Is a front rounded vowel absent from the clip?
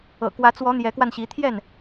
yes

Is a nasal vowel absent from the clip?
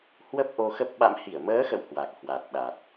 yes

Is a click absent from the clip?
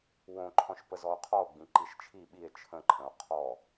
no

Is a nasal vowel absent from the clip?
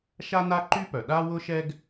yes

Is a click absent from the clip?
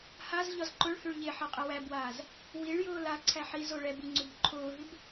no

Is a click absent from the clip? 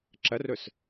no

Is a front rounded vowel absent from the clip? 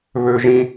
no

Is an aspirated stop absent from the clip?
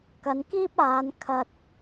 no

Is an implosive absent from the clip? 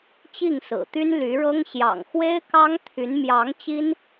yes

